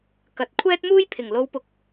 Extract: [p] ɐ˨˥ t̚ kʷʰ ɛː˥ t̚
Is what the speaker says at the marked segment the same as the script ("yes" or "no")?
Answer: no